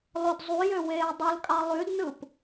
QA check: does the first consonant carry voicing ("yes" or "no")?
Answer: yes